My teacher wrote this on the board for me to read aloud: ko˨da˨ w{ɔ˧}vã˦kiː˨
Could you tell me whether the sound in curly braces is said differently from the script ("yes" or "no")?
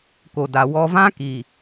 no